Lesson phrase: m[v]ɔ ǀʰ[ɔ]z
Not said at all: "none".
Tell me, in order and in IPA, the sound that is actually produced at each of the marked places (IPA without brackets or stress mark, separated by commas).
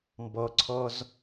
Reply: b, ɔ